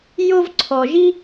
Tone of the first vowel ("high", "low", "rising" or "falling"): high